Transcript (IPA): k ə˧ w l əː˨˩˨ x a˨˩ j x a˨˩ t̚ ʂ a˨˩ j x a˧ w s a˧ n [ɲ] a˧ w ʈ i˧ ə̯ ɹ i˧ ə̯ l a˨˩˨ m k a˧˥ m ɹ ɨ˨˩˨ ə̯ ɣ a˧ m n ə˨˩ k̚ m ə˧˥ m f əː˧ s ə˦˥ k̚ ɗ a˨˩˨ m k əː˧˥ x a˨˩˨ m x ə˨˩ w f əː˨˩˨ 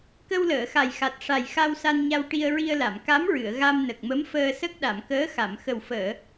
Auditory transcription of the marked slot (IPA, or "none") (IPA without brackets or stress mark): ɲ